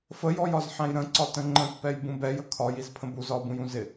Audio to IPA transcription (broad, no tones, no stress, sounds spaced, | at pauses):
f ə j ɔ j ɒ z ħ æ̃ j ɾ ə̃ ǀ ɒ t ə̃ ŋ͡ǃ ə̃ t p ɛ j b ũ b ɛ j ə kʰ ɒ j i z pʰ ə̃ b u z ɒ b ũ j ũ z ɪ